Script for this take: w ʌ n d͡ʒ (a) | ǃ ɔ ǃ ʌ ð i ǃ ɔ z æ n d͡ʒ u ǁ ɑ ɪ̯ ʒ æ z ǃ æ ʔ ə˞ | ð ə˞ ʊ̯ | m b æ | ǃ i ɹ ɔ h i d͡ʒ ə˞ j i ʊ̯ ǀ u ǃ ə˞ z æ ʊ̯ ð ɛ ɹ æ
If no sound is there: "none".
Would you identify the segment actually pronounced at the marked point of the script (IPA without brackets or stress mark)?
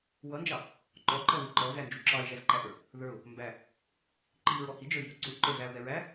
ɑ